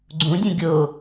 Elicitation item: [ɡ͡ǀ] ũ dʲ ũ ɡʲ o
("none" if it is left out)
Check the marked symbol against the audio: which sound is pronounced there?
ɡ͡ǀ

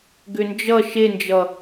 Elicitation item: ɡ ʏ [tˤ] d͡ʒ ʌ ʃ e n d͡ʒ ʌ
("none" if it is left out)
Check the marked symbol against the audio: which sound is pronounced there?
n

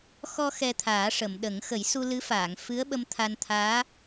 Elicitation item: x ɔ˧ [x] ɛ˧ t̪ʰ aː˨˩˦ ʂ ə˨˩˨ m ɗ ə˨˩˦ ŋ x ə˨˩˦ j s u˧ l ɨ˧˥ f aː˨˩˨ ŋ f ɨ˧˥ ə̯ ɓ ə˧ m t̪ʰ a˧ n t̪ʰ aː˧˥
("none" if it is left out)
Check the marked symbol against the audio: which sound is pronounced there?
x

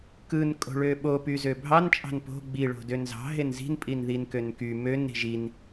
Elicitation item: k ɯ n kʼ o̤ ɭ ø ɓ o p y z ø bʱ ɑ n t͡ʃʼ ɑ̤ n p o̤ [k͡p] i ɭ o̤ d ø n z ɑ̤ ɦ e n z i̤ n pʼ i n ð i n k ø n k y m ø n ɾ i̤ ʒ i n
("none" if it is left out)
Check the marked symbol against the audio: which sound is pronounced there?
ɡ͡b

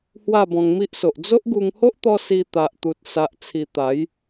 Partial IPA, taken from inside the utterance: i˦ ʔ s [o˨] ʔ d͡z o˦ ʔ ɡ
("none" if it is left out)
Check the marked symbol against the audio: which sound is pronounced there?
o˨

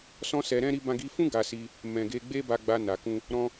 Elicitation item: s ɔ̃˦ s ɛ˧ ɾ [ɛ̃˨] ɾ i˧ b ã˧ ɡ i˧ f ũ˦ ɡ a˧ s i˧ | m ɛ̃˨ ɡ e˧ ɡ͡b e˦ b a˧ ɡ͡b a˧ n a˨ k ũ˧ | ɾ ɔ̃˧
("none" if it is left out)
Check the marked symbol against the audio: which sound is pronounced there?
ɛ̃˦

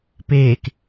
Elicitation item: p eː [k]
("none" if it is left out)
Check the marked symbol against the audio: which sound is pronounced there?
k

